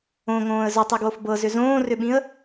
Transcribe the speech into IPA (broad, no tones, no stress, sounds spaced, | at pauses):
õ ŋ õː ə̯ z ʏ tˤ i ɡ w o f b ɤ z ʏ z õː r ʏ ɓ ĩ ə̯